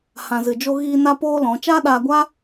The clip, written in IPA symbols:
hã˨ zɨ˨d͡ʒo˧ɣiː˧ na˦poː˦lɔ̃˨˦ t͡ʃa˦ɗaː˧ɡʷa˦

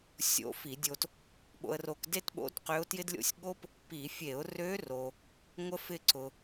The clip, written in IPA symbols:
sʲo̰˧˥fi˧˩˧dʲo˧t | ɓo̰˧ə̯ro˧kde˥tɓo̰˧˥d qø˧˥ʊ̯tjɪ˥dlʲo̰˥˧sʲ ɠo˥p | pi˧˩˧ fʲe˧˩˧ʊ̯ rø˧˥ ro˧ | ŋʷə˥fɪ˥˧ǀʊ˧

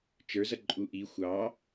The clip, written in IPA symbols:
t͡ʃə˞zʌ ǃʼuʔi xʷɑ

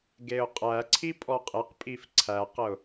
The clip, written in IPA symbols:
ɡeʊ̯qʼæǀʰi pʼɔqʼeqpʼif ǀʰæqəʊ̯

